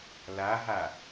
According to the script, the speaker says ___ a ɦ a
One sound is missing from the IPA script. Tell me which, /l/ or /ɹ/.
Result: l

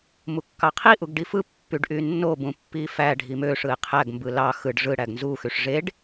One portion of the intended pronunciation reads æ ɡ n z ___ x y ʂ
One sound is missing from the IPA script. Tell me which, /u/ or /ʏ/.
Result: u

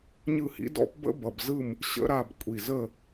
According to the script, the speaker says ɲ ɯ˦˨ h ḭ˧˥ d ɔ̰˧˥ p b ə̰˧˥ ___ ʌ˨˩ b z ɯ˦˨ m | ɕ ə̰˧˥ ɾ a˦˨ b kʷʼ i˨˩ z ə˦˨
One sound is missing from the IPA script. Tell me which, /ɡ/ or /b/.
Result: b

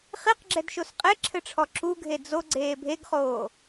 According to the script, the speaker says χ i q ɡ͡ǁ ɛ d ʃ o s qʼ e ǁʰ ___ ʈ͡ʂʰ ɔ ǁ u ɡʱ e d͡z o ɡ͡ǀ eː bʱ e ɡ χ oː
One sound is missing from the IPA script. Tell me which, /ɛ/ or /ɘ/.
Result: ɘ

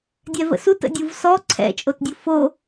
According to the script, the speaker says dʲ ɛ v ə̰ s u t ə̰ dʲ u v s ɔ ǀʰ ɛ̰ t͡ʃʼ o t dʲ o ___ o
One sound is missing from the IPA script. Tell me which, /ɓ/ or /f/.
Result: f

